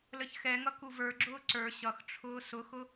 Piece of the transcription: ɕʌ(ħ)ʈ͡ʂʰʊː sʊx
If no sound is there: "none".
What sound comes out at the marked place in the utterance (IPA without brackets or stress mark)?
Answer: x